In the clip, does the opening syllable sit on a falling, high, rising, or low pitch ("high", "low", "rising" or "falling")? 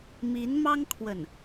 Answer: rising